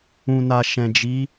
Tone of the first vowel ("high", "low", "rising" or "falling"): low